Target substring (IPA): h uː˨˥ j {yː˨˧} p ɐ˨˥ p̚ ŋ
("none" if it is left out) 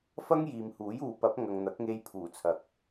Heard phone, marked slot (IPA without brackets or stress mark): uː˨˧